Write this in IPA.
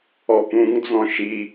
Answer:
ɔ p ũ ŋ d͡z ɔ̃ ʃ i

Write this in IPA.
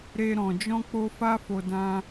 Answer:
ɾ e˨ ɾ ɔ̃˨ d͡ʒ ɔ̃˧ k͡p o˧ f a˦ f o˧ d ã˧

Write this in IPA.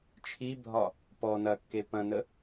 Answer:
t͡ʃʰ i bʱ ɒ | p ɔ n ɐ kː e p ɐ̃ n ə

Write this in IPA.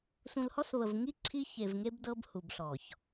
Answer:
s ũ˨ l h ɔ˦ s β ə˨ v ŋ i˦ ǀʰ i˦ ç e˨ v ŋ e˦ b d ɤ˦ b h u˨ b ɬ ɔ˨ ç

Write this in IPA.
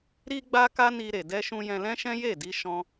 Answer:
ɾ i˧ ɡ͡b a˧ k a˦ n i˧ ɾ e˨ d ɛ˧ ʃ ũ˧ j ɛ̃˧ l ɛ̃˦ ʃ ɛ̃˦ j e˦˨ d i˧ ʃ ɔ̃˧

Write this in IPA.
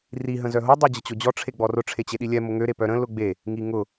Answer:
r i ɦ ə̃ z œ ɦ o dˤ ø d͡ʑ ə t͡ɕ o d͡ʑ ɔ ʈ͡ʂʰ e ɡ͡b ɔ r ʊ ʈ͡ʂʰ e t͡ɕ e ɗ i lʲ ɛ m ʊ ŋ ø ɾ e p œ ɾ ə̃ l ʊ ɡ͡b e | ŋ i ŋ ʊ

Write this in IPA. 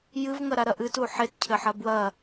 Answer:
j ɨ v ŋ ɐ ɾ a ɾ ɐ ʔ ɨ t u ħ e t cʰ ɘ ħ ɐ b w ɐ

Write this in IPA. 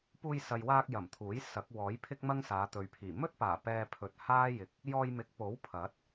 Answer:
p uː˧ j s ɐ˨ j w aː˧ k̚ j ɐ˨˩ m t̪ʰ uː˨˥ j s ɐ˨˥ k̚ w ɔː˨˥ j pʰ ɪ˥ k̚ m ɐ˥ ŋ s aː˨˧ t̪ ɵ˨ ɥ pʰ iː˨˩ m ɵ˥ t̚ p aː˨˩ p ɛː˧ pʰ ɵ˨ t̚ h aː˥ j ɪ˨ k̚ | j ɔː˧ j m ɪ˨˥ k̚ p o˨˥ w pʰ ɐ˨˥ t̚

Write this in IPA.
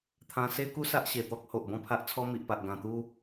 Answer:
t̪ʰ ã˧ s e˦ k u˦ s a˦ ʔ ɕ e˨˩ t̪ ɔ˦ k̚ h o˨ ʔ b ɔ̃˥˧ pʰ a˦ ʔ t͡sʰ ɔ˦ m i˨ ʔ p a˨ ʔ ɡ ã˨˩ t̪ u˦

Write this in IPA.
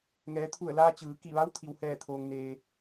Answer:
ŋ ɛː˩˧ t̪ʰ u˧˩ ə̯ l aː˧ t͡ɕ ɯː˩˧ k i˧˩ ʋ a˧˥ w t̪ʰ i˩ w h ɛː˧˩ t̪ʰ oː˩ ŋ n eː˩

